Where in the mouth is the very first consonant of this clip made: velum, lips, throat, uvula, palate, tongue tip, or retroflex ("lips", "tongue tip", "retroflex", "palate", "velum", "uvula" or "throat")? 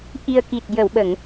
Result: throat